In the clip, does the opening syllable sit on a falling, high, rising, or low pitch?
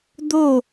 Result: falling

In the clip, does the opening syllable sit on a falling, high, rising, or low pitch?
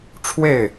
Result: falling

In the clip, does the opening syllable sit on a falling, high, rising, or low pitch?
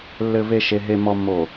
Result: low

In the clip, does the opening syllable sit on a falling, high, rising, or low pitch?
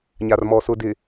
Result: low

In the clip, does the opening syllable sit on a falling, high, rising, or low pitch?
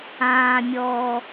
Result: low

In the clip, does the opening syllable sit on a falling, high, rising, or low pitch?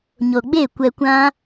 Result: low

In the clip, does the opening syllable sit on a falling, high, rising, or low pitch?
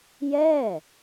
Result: falling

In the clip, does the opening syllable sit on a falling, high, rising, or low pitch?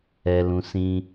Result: low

